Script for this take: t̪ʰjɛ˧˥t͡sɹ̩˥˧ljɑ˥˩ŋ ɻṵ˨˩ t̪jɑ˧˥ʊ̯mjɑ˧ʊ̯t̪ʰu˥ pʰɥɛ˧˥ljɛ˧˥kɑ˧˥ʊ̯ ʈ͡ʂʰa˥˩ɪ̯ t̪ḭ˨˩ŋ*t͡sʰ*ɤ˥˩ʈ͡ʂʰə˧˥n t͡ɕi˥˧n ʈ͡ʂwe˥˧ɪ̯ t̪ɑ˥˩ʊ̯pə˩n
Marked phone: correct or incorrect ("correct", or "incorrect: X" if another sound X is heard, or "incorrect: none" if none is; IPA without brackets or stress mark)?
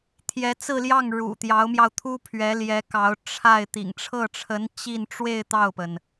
incorrect: ʈ͡ʂʰ